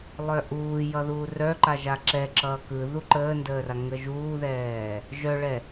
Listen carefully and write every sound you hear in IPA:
lˠœʔuːjʌ ðuːrœǃa ʒaǁɛǁʌː kɯ ðuǃəːndəːra ŋəʒuːðɛː | ʒœɭɛ

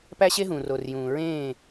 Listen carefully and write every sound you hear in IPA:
pæ˦ɕe˦ɦũː˨ ro˨r jũː˨ɹẽː˦˨

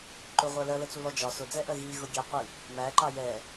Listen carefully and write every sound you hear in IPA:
ǃʊʁʷɜ lɜlət͡sulɔ d͡ʒɒ sʊd͡zɛʔɜ ɣiɣʊ ɡʲɛqʷi | mæǃɑ jɛ

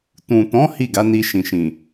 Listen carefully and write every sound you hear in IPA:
tũ˨tɔ̃˨˦ hi˦˨ɡa˨˦ ni˧ʃĩ˨ʃĩ˨

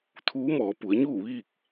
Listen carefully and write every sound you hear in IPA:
t̪ʰuː˧˥mɔː˩˧ pu˩˧ə̯ɲuː˥˨ʋiː˥˨k̚

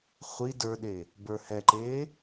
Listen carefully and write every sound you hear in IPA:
χʷi də˞ɗe | bə˞hɛǃeː

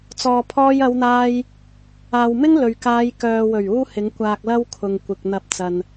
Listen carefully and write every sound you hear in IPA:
t͡sɔː˨pʰɔː˧jɐ˨˧wn̪aː˧j | aː˨wmɪ˥ŋ lɵ˨ɥkaː˨˧j kœː˨wɵ˨˩ɥ uː˥ hɪ˨˥ŋkʷaː˧k̚ lɐ˥wkʰʊ˨ŋkʷɪ˨k̚ n̪ɐ˨p̚ t͡sɐ˨n

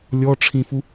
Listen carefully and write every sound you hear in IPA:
lʲɔʈ͡ʂʰĩfu

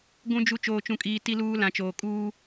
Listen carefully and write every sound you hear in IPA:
ɡʷũ˨d͡ʒu˨ t͡ʃoː˨t͡ʃũ˨kʼiː˨ ti˨luː˨ lã˨t͡ʃoː˨ kʼuː˦

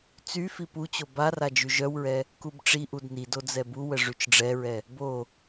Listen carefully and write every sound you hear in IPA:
t͡sy fiput͡ɕo bara d͡ʒyʒœwɹɛ | kubʈ͡ʂiʔud nido d͡zɛbuwə ʐyt͡ʃɖ͡ʐɛɹɛ | bo

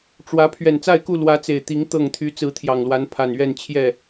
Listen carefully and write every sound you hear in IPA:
ʈ͡ʂwä˨˦ pʰɥɛ˨˩nt͡sa˥˨ɪ̯ku˥˨ lwä˨˦t͡se˨˩ɪ̯t̪i˨˦ŋ t̪ɤ˥˨ŋ t̪ʰy˨˦t͡sɹ̩˨˦t̪ʰjɑ˨˩ŋlwa˨˦n pʰa˨˩nɥɛ˥˨n t͡ɕʰjɛ˥˨

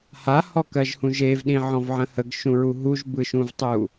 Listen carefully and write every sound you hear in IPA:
hahɔkɜʒhũ ʒevɗĩʕɔ̃vʕə̃ həɡʃũɹu ɦuʒbɯʃũvtˤu

